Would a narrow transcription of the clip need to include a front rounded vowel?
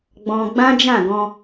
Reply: no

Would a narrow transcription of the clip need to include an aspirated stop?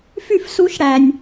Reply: no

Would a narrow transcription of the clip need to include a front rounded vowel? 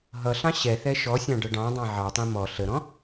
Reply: no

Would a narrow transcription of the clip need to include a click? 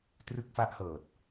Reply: no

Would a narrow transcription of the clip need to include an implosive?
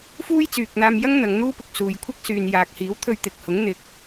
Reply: no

